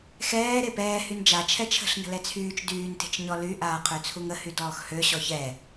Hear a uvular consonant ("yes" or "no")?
yes